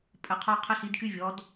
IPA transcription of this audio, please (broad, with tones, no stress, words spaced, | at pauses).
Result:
pʼə˩˧qʰɔ˧ qʰə˧ɬi˩˧dky˧vʲɔ˩˧d